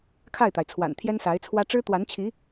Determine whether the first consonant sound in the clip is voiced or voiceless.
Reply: voiceless